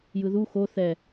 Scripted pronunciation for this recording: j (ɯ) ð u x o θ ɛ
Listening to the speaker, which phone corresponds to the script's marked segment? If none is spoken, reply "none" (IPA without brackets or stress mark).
ɯ